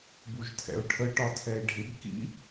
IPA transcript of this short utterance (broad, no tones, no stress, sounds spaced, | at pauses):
b u ʒ tʰ ɛ̰ ʊ̯ ʈʰ ə ʈ ɒ tʰ ɛ ɪ̯ ɖʱ ɪ b k ḭ